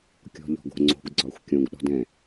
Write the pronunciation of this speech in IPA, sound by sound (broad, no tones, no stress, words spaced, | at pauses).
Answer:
kʲɔ̤ʎɔ̤ɡo̤ŋ͡ǀo̤ɡ ɡ͡ǀɒxʷkʲõɡ ɗɔ̤dɛ̃